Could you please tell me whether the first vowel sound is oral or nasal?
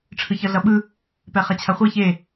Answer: oral